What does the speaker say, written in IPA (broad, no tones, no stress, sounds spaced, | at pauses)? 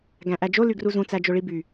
ɡ æ̃ ʔ æ d͡ʒ o l y ɡ r u z ũ t͡s æ d͡ʒ o ɭ i b y